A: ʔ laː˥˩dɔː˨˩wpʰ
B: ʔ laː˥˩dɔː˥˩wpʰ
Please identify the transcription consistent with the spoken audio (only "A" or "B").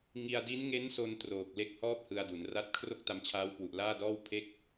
B